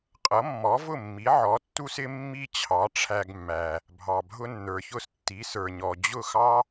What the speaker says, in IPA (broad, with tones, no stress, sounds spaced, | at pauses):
qʼ ʌ˩˥ mː ɔ˩˥ v ʊ˥˩ mː i˩˥ ʕ ɔ˩˥ tː u˥ s ɪ˥ mː i˥ t͡ɕʰ ɑ˩˥ ʈ͡ʂʰ æ˧ ɡ mː æ˩ | bʱ ɑ˩ bʱ ʊ˧ nː ə˞˩ ç ʊ˧ s tː i˩˥ s ə˞˩ ɲ ɔ˩ d͡ʑ ʊ˥˩ x ɑ˥